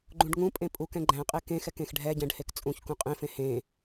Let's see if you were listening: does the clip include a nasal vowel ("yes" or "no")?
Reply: yes